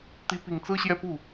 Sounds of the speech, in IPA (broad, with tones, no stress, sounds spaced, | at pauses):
t̪ i˧˥ p i˨˩ ŋ t͡s ɹ̩˥ ɕ j ɛ˥˧ p u˥˩